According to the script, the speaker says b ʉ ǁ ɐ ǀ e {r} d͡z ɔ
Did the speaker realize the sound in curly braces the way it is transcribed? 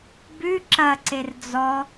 yes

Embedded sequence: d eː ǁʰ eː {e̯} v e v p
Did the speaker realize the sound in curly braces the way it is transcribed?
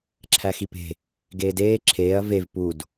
no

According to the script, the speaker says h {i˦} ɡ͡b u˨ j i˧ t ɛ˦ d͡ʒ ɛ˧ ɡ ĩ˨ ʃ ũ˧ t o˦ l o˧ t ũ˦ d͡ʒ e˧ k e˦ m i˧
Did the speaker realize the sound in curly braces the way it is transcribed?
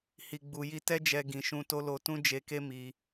no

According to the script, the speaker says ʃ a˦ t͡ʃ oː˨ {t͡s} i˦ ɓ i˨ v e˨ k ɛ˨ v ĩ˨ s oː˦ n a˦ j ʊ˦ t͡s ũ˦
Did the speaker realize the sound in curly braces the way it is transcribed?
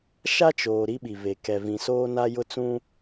no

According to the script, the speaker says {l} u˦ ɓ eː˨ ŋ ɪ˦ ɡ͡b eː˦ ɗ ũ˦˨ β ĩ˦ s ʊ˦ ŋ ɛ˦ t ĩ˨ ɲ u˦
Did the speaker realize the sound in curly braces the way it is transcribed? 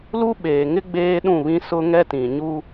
yes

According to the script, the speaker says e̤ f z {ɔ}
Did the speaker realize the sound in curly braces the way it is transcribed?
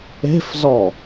yes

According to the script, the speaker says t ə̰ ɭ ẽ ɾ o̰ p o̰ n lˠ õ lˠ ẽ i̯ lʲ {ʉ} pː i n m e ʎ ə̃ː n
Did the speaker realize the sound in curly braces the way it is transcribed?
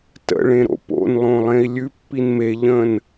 yes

